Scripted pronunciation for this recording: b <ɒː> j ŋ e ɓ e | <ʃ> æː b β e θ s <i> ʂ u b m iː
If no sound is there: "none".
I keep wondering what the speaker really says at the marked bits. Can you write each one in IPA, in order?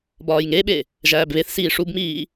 ɒː, ʒ, iː

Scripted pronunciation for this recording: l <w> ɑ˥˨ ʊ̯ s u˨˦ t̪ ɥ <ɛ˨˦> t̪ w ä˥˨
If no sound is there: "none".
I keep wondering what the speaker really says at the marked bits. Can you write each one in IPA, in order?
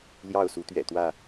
j, ɛ̰˨˩

